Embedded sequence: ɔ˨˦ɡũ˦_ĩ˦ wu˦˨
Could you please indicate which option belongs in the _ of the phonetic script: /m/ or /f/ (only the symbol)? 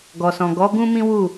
m